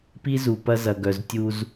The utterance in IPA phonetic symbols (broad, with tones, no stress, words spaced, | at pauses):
pi˦zu˨ pɐ˦zɐ˨ɡœ˨z tʲu˦z